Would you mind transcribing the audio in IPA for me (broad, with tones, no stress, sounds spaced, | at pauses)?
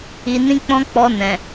i˨ n ĩ˧ k͡p ɔ̃˧ k͡p ɔ˧ n ɛ̃˨